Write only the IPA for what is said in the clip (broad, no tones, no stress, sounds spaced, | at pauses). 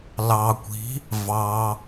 l ɑ kʷ i̤ | v ɑ